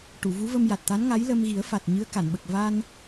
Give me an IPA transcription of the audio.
ʈ u˨˩˨ v u˧˥ v ə˧ m j a˨˩ t̚ t̪ a˧˥ n ŋ a˧˥ j l ə˧ m ɣ i˨˩˦ ə̯ f a˨˩ t̚ ɲ ɨ˧˥ ə̯ k a˨˩˨ n ɓ ə˨˩ k̚ v a˧ n

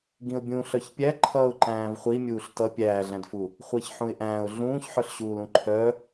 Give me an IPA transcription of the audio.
ɡ ĩ ʊ̯ bʲ ũ ɬ œ ç pʲ æ ǃʰ ʌː ʊ̯ ǃ æ̃ː v χʷ i mʲ uː ɬ t ʌ pʲ æː ɮ æ̃ d f u | χʷ ɜ ç ħ ũ ɪ̯ ʔ æ̃ː ʊ̯ ɮ ũː ç ħ œ ɬ ɕ uː l ũ ǃʰ œ

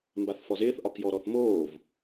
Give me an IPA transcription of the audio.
m b a θ f ɔ z ɪː θ ʔ ɒ k j ɔ ɾ ɔ θ m oː v

